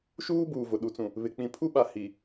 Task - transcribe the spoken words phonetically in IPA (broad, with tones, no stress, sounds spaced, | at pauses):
ʃ uː˦ b uː˨ v ʊ˨ ɗ u˨ t͡s ũ˨ | β ɪ˨ k͡p ĩ˨ pʰ u˦ ɓ a˨ h i˨